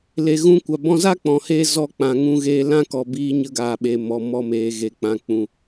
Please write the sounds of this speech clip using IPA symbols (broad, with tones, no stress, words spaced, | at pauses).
le˨ɣũ˧kʷa˨ bɔ̃˧za˦k͡pɔ̃˨heː˧ zɔ˧k͡pã˨ ŋũ˧ɣeː˧ lã˦kɔ˨biː˧ ɲə˧ɡaː˨ɓe˨ mɔ˨ mɔ˧ meː˨ɣe˨ k͡pã˨k͡pũ˨